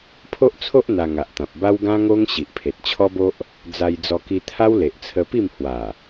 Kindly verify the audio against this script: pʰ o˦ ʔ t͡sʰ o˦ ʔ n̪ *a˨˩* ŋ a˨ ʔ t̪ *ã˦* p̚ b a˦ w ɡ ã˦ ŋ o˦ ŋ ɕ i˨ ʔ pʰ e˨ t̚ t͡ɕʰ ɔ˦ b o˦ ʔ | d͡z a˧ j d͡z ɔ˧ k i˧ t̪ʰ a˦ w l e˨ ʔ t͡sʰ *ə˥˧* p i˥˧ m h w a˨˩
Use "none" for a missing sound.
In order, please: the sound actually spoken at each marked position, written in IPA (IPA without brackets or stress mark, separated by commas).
a˧, ã˨, ə˧